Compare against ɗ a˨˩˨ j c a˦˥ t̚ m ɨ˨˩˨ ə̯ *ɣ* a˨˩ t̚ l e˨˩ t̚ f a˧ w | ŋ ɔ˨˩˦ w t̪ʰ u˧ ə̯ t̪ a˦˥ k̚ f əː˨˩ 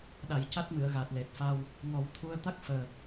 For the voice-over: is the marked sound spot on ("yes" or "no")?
yes